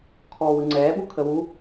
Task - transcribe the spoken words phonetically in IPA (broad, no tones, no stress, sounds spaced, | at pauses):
kʰ ɔː w ɯ ŋ͡ǀ ɛː ɓ u kʰ ə w u